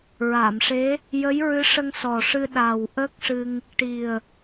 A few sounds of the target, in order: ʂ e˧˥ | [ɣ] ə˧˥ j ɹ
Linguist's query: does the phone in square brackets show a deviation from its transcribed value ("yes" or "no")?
yes